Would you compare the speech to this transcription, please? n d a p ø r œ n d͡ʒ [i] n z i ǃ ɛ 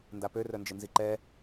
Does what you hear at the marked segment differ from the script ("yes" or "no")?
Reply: yes